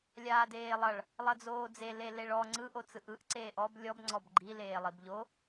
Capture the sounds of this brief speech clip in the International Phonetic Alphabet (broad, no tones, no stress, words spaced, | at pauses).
lʲaːdeːlˠʌɭ | lˠʌd͡zoːd͡ze leleɭɔ ŋ͡ǀɯ ʔot͡sɯʔɯʔ ǀeːʔɔb lʲɔb ŋ͡ǀɔbɡ͡ǃi leːlˠibʎo